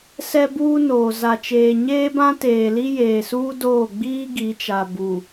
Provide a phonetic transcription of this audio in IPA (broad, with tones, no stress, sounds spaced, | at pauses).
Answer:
s ɛ˦ b uː˦ n oː˨ z a˨ t͡ʃ eː˨ ɲ eː˦ b ã˦ t eː˨ l i˦ j eː˨ s uː˦ d oː˦˨ ɡ͡b iː˦ ɡ i˨˦ t͡ʃ a˨ b u˨